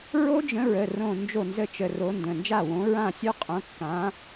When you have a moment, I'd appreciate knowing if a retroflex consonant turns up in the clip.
no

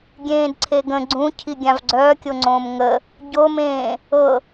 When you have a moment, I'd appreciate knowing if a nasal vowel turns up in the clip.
yes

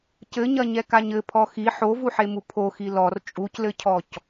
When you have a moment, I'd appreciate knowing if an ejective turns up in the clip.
yes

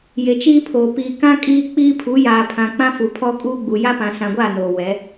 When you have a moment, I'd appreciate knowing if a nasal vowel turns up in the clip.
yes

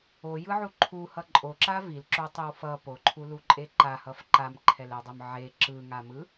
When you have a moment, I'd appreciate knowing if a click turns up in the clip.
yes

